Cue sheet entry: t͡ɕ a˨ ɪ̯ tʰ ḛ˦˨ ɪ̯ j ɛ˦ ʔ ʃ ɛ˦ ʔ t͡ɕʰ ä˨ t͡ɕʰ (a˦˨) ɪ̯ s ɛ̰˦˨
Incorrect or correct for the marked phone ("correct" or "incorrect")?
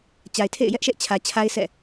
incorrect